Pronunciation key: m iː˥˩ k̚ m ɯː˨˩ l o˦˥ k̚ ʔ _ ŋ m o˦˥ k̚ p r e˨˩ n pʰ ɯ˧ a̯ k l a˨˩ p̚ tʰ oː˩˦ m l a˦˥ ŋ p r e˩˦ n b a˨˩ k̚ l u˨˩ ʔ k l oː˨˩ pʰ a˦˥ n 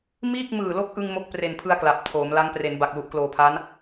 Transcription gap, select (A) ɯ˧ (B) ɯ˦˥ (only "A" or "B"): A